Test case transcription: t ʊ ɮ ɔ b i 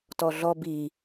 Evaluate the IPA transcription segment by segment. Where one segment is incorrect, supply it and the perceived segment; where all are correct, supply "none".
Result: ʊ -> ɔ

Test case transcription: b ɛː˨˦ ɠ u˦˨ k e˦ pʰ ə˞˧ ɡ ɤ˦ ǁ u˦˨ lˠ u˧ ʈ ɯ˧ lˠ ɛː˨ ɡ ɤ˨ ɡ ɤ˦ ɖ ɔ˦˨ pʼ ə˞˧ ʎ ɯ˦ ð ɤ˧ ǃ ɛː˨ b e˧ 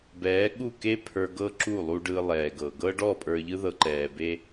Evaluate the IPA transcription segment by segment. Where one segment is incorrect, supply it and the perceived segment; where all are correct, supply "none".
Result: ʈ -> ɖ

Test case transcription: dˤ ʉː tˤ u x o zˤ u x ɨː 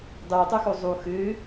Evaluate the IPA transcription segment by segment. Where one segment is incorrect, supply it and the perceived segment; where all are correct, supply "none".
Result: none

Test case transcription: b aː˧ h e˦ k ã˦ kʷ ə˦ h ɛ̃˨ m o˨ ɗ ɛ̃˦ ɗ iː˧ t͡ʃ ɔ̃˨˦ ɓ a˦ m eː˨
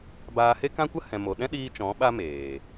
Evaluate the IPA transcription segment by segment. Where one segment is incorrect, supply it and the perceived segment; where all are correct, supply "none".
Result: none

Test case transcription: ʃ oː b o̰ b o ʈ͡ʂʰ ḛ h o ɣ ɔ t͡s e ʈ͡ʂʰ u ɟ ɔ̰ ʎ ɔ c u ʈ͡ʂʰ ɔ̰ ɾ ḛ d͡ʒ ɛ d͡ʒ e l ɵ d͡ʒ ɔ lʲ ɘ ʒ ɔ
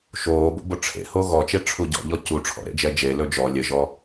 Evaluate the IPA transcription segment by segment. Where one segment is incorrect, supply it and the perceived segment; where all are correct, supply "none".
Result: t͡s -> t͡ʃ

